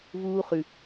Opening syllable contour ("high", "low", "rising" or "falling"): high